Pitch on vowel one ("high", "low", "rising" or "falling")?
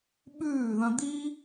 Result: falling